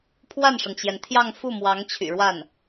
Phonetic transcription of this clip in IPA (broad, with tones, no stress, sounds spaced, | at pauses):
pʰ w a˥˩ n ʂ ɤ˩ ŋ t͡ɕ j ɛ˩ n t̪ʰ j ɑ˥˧ ŋ f u˥˩ m w ɑ˧˥ ŋ t͡ɕʰ y̰˨˩ ɻ w a˥˩ n